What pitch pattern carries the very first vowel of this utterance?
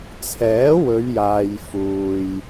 rising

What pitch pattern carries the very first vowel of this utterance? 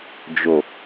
low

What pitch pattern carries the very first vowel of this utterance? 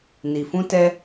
low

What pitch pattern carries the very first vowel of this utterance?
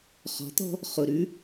rising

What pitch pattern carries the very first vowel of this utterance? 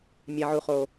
low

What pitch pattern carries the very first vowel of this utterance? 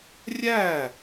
falling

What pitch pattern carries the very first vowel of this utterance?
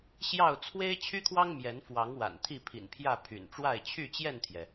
falling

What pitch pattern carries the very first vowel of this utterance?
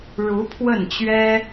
rising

